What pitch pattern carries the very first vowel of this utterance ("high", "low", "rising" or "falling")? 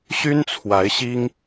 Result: high